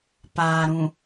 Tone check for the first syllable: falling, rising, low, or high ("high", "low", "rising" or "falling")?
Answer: low